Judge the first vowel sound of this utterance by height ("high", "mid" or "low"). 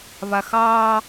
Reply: low